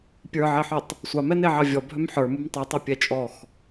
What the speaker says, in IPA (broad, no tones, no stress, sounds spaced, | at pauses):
pʲ ə˞ ʕ e ħ œ tˤ | sʷ ɑ m ɛ n e ʕ ɑ vʲ ɔ bʱ œ m ħ ə˞ m u m tˤ œ tˤ ɑ pʲ ɛ t͡ʃʼ ɔ x